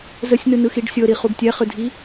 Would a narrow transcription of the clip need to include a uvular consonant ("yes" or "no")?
yes